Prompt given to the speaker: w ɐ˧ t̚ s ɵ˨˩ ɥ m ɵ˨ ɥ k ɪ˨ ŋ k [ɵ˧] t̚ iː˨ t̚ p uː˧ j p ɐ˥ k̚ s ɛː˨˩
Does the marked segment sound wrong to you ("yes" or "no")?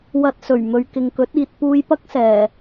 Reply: yes